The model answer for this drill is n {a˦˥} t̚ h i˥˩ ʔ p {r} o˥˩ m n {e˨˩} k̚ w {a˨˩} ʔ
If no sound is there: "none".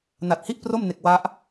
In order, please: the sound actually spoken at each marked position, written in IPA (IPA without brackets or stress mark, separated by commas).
a˨˩, r, e˨˩, a˦˥